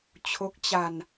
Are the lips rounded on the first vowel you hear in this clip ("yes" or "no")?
yes